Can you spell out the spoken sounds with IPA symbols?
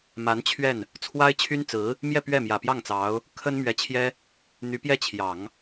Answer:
m a˧˥ n t͡ɕʰ ɥ ɛ˥˩ n | t͡sʰ w a˥ ɪ̯ t͡ɕʰ y˥ n t͡s ɹ̩˧˥ | m j ɛ˥˧ p ɥ ɛ˥˩ m j ä˨˩ p j ɑ˥˩ ŋ t͡s ɑ˧˥ ʊ̯ | kʰ ə˥ n m ɥ ɛ˧˥ t͡ɕʰ j ɛ˥ | n̪ y˧˥ p j ɛ˥˩ t͡ɕʰ j ɑ˨˩˦ ŋ

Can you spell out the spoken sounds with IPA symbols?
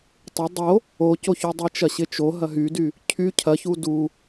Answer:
tˤ ɪ dˤ o | o c o ç y dˤ i t͡ʃ ɐ ɕ ɪ t͡ʃ o ɦ ɐ ɦ y d y | cʰ y cʰ ɐ ç u d u

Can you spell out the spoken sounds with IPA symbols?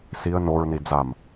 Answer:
s i ə̯ n o ɹ n i d͡z a m

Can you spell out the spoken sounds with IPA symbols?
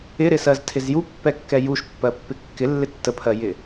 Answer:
ɪ ɾ ɪ s ɜ z tʰ ɪ z j u pː ɛ kː ɛ j u ʃ pː ɜ pː ɪ kː ɪ lː ɪ tː ə pʰ ɜ j ɪ

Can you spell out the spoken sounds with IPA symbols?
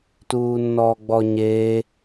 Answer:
t uː nː ɔː ɡ͡b ɔ ɲ eː

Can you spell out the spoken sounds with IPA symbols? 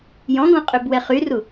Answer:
j ɔ̃ ɡ ɔ̃ qʼ ø b w ɛ χ y r u

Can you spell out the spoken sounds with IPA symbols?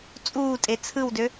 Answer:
t͡sʼ uː tʼ e t͡sʰ ɯ w d ø

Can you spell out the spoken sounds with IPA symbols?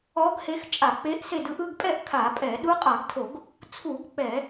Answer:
ɔ˧˥ ɡ h e˧˥ x t͡ʃʼ a˧˩˧ k͡p e˧˥ ʔ s e˦˨ d ɯ˦˨ ʔ ɯ˦˨ ɡ pʼ ɛ˦˨ ʔ kʰ a˧˩˧ pʼ ɛ˧˩˧ ɗ u˧˥ qʼ a˧˩˧ ɡ tʰ o˧˩˧ ɡ | t͡sʰ u˧˩˧ ɡ k͡p ɛ˧˩˧

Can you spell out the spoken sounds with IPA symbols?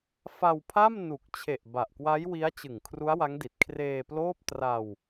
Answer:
f a˧ w pʰ a˥˩ m n u˨˩ k̚ t͡ɕʰ e˨˩ ʔ b a˨˩ ʔ k w a˦˥ j w i˦˥ a̯ t͡ɕ ɯ˨˩ ŋ kʰ r u˦˥ a̯ w a˦˥ ŋ d i˨˩ t̚ kʰ r eː˧ p l oː˥˩ p̚ t r a˧ w

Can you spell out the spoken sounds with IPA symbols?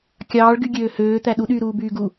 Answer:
kʲ ɑː ɭ ɡ y ɡʲ øː h øː t̪ æ ɗ u ɗ yː ɾ uː b yː ɡ u

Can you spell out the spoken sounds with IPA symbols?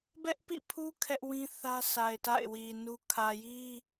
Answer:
b ɛ˦ ʔ p ḭ˦˨ pʰ u˦ kʰ ɛ˦ ʔ w ĩ˦ θ ä˦ sʰ a˨ ɪ̯ t a̰˦˨ ɪ̯ w i˨ n u˦ kʰ ä˨ j i˦

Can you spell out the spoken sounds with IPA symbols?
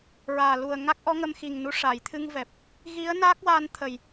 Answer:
ɹ aː˨˩ l u˨˩ ə̯ ŋ a˦˥ k̚ ʔ ɔ˧˥ ŋ ə˧ m x i˨˩ ŋ n u˧ ʂ a˨˩˨ j t̪ʰ ɨ˧ ŋ v ɛ˨˩ p̚ | ɣ i˧˥ ə̯ n a˦˥ k̚ w a˧ n t̪ʰ ə˨˩ j

